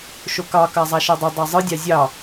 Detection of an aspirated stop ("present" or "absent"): absent